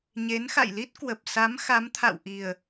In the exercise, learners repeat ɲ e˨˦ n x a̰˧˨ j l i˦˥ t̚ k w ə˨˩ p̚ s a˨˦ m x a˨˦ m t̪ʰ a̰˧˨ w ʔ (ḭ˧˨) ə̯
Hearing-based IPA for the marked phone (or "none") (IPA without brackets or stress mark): i˨˩